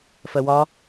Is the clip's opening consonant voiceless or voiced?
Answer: voiceless